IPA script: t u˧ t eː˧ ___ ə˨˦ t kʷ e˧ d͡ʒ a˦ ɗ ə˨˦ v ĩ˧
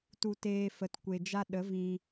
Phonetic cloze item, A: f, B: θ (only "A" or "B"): A